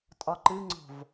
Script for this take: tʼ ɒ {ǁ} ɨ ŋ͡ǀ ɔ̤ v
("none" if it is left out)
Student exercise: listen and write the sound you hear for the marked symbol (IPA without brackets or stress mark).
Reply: ǃ